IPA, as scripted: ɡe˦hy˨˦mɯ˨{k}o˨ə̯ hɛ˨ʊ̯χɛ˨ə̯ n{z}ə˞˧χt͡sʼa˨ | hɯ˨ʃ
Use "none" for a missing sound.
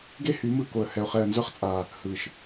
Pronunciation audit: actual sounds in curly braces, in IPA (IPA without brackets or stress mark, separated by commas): k, z